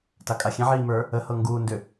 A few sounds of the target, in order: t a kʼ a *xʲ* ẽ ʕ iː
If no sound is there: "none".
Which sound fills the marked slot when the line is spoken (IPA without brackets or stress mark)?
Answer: xʲ